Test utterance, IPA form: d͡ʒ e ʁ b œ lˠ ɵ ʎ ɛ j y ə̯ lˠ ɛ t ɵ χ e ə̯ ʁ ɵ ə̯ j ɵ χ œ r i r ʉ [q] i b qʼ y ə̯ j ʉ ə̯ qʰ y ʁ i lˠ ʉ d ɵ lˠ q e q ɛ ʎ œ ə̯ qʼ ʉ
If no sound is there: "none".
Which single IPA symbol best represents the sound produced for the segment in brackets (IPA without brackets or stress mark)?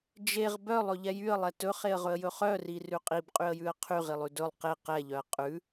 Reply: qʼ